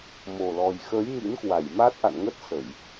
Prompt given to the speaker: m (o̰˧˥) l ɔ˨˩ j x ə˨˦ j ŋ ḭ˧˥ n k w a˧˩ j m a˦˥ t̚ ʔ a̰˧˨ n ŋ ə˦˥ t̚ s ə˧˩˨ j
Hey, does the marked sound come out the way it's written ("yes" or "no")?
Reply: no